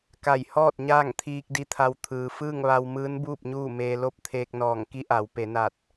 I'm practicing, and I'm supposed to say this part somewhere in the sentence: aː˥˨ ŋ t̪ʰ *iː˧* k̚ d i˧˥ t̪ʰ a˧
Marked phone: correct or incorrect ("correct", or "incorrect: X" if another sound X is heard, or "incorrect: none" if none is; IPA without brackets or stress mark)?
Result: correct